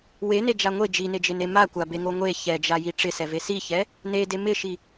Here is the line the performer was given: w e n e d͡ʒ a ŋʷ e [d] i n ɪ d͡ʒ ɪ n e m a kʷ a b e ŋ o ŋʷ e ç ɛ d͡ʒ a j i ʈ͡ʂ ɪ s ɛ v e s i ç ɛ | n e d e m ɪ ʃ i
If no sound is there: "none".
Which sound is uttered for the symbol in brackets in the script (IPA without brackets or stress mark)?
d͡ʒ